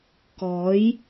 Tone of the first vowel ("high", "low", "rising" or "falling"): rising